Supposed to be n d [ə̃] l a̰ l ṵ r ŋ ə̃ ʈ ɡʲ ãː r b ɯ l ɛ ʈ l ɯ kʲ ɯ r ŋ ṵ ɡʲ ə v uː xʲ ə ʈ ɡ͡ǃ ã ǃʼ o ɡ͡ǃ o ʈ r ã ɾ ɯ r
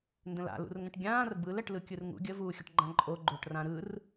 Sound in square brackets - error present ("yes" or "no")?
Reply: no